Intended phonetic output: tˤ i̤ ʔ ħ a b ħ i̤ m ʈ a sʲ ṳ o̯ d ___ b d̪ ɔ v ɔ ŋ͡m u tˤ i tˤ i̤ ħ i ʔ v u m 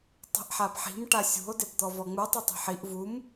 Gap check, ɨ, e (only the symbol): e